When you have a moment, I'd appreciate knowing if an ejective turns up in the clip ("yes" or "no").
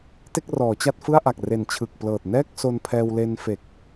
no